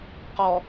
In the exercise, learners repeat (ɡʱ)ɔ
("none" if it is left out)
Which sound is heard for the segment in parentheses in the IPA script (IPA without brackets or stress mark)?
q